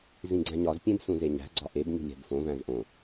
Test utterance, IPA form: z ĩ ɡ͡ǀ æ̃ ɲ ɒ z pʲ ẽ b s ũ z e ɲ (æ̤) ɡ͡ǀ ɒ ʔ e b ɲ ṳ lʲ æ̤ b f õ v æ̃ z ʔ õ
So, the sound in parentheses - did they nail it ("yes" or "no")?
yes